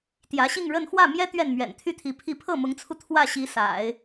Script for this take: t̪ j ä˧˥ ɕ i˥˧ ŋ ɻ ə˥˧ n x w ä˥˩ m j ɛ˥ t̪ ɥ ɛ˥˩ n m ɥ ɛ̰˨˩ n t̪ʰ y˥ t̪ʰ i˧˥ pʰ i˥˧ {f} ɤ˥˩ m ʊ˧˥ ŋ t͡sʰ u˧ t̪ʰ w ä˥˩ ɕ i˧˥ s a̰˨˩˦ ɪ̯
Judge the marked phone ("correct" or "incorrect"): incorrect